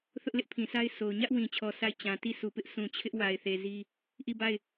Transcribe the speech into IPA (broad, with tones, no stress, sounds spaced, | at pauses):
θ ʊ˦ ʔ l ɪ˦ ʔ pʰ ĩ˨ s a˦ ɪ̯ sʰ o˨ ʊ̯ ɲ ä˦ ʔ w ĩ˨ t͡ɕʰ ɔ˨ sʰ a˦˨ ɪ̯ t͡ɕ ã˨ t i˦˨ s u˨ p ɪ˦ ʔ sʰ ũ˨ t͡ɕʰ ɪ˦ ʔ w a˨ ɪ̯ θ e˨ z i˦ | ʔ i˦˨ b a˦˨ ɪ̯